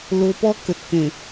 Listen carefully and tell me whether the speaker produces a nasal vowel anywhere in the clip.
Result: yes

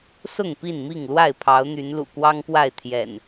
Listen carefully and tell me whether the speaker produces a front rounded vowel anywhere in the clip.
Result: yes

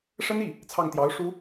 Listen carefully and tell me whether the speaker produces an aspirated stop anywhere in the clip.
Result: yes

